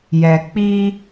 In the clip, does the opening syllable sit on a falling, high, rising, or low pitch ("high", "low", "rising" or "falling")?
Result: low